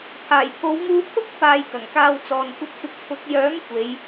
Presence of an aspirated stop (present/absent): present